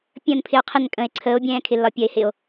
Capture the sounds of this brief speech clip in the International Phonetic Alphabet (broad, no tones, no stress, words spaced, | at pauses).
pʲə̃ːnpʰɪo̯qʰɪn kʼə̃e̯ ǀʰəːo̯bʲɛ̃ːkʰɪlːɒ pʲɜe̯hɪo̯